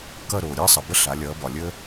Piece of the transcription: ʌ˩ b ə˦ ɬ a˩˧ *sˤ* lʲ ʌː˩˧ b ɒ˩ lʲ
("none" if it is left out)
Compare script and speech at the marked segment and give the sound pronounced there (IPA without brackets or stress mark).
none